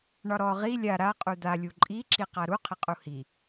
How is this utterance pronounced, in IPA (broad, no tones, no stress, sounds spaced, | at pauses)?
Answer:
ɳ ɒ ɾ ɔ ʁ i lʲ a ɾ a qʼ u d̪ a lʲ u ǃʼ i ǁ i q a ɾ u qʰ ɪ qʼ u h i